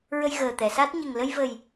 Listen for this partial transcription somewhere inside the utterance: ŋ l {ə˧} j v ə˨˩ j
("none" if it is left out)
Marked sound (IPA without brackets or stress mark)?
ə˧